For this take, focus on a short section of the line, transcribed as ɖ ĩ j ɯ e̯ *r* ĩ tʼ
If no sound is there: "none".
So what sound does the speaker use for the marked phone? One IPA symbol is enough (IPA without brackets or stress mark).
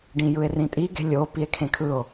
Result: r